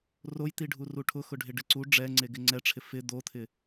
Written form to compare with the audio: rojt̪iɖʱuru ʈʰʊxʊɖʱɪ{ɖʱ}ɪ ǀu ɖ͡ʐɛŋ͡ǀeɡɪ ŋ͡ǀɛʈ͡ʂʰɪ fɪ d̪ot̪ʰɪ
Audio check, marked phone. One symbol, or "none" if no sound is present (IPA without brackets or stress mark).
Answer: ɖ